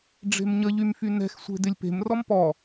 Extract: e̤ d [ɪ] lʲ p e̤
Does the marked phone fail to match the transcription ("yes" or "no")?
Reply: no